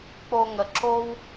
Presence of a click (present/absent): present